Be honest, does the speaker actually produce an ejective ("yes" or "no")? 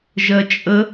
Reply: yes